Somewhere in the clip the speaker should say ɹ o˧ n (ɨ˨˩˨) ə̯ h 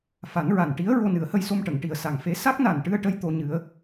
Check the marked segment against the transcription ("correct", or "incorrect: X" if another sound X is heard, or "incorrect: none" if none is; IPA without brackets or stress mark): incorrect: ɨ˨˩˦